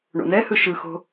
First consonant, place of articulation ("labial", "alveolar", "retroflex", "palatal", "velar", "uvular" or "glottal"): retroflex